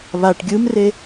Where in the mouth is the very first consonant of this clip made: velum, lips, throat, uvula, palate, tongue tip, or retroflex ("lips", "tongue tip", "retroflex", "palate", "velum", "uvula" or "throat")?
lips